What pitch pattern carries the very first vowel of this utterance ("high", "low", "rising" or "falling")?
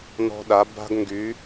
high